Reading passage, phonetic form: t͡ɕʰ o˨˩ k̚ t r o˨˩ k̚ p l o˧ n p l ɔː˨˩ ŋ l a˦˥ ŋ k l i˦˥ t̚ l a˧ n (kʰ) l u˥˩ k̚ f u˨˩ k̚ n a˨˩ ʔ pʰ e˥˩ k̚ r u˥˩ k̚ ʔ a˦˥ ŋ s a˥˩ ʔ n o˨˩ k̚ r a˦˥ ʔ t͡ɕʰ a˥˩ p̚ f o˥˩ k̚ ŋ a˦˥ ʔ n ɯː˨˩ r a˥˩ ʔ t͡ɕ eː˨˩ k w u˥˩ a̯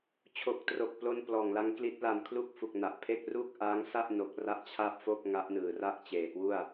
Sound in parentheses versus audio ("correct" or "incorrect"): correct